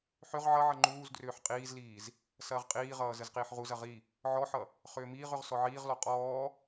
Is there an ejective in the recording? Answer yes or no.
yes